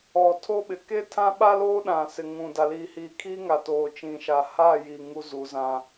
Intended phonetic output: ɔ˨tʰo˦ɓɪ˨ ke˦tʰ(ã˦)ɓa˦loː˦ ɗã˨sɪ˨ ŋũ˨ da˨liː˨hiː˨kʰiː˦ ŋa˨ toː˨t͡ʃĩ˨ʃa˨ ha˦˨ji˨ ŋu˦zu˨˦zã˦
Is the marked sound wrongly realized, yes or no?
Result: no